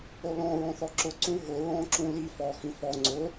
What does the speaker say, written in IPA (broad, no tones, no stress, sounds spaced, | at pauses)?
o l ɔ̃ ɹ ɔ̃ θ ɔ ǁ ʊ ǀ ũ ɦ ʊ ɹ ɔ̃ ǁ ũ l i f ɔ x ĩ f ɔ ŋ͡ǀ ʊ